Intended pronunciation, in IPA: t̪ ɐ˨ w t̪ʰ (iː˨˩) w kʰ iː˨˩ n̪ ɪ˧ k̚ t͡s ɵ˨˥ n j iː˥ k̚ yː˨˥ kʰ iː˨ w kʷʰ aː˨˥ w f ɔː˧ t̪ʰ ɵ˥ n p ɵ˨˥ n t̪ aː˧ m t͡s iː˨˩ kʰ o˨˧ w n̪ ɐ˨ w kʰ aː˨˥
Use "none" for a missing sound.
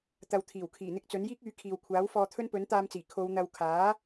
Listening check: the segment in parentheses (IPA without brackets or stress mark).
iː˨˩